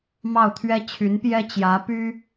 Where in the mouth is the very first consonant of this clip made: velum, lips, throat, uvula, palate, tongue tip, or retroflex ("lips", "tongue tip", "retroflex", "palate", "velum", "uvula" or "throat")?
lips